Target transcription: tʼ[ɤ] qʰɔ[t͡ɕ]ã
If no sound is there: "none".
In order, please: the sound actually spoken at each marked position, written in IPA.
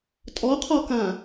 ɔ, k

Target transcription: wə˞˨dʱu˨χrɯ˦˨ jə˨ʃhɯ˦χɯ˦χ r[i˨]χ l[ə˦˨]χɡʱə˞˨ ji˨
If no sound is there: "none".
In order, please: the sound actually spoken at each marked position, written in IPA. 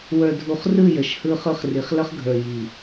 i˨, ə˦

